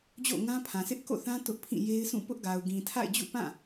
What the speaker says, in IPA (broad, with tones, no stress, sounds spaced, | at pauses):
d͡ʑ o̰˦˨ ŋ ã˦ pʰ ã˨ s ɪ˦ ʔ k o̰˦˨ θ ã˦ t ʊ˦ ʔ pʰ ĩ˦˨ j e˦ ɪ̯ s ũ˦˨ p ʊ˦ ʔ ɡ a˨ ʊ̯ ɡ ĩ˨ tʰ a̰˦˨ ɪ̯ d͡ʑ ṵ˦˨ p ã˦˨